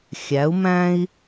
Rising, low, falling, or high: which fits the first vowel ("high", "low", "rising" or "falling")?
rising